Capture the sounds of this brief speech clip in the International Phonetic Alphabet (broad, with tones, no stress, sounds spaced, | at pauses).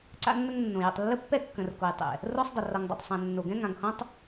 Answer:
ǀ a̰˦ nː ə˦ ŋ nː õ˨ j ə̰˨ tˤ lː ə˦ pː ɛ˦ kː ə̃˨ r k o˨ j tˤ ɛ̰˨ | r o˦ sˤ dˤ ə˨ r ʌ˨ ŋ dˤ o̰˨ tˤ sˤ ɛ̃˨ nː o˨ ɡ ɛ̃˦ ŋ ã˨ ŋ h õ˦ tˤ